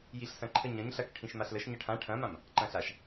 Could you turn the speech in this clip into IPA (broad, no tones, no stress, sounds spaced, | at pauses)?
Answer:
j i ɬ s ɐ̃ ǃʰ ə ɲ ɐ̃ ɲ ɬ ɐ k ʈʰ ĩ ʃ m a ɬ l ə ʃ ɲ ɐ ʈʰ ã ʈʰ ɐ̃ m ã m | ǃ ɐ̃ ɬ a ʃ